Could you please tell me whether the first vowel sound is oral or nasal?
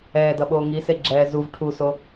oral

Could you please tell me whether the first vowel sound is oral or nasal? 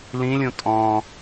nasal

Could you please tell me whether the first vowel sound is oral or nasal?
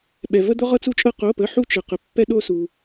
oral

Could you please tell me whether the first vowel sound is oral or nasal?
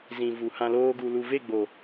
nasal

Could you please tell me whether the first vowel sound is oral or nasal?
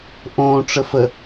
nasal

